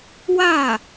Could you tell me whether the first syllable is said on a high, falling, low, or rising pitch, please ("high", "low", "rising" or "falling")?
falling